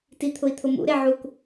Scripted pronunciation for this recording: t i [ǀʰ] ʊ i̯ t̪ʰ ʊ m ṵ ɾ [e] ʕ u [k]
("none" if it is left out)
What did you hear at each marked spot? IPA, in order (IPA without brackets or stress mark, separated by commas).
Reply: t̪ʰ, e, k